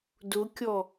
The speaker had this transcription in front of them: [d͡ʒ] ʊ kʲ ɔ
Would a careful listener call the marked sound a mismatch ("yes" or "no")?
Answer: yes